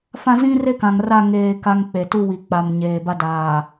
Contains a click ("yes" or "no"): no